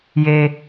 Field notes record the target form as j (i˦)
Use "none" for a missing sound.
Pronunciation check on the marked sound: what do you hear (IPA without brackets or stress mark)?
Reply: e˦